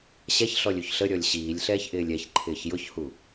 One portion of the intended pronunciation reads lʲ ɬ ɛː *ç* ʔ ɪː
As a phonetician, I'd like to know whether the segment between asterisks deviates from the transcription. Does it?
no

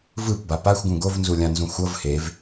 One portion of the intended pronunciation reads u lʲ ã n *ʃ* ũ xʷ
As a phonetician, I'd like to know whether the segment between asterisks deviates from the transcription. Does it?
yes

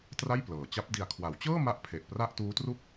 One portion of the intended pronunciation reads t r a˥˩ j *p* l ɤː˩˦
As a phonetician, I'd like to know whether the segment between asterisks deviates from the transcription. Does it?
no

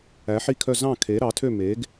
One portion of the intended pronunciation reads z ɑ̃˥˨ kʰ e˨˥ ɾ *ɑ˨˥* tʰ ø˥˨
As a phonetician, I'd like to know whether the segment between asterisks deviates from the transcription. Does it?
no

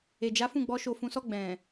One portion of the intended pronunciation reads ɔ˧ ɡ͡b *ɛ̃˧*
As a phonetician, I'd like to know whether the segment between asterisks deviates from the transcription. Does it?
yes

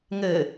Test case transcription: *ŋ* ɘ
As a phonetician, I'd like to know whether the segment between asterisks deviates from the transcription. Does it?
no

